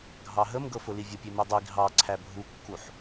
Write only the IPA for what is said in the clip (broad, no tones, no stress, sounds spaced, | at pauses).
ɡʱ ɑ ɦ ə m ɡ ɤ f ʊ l i vʲ ə pʲ e m e dˤ i ɡʱ ɑ ǀʰ æ bʱ u kː u ħ